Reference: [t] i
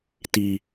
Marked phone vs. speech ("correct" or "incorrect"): correct